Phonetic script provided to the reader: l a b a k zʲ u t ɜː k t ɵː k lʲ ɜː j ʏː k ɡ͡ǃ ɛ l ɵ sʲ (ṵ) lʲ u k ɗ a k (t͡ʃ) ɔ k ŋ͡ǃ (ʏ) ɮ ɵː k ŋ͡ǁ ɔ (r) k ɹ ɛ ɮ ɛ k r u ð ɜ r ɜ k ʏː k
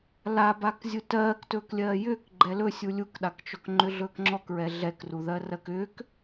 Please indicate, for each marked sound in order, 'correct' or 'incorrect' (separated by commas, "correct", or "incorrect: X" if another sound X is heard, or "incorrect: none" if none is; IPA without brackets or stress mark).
incorrect: u, correct, correct, incorrect: none